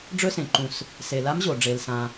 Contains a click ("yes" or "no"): yes